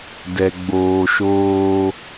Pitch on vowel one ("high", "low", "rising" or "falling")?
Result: low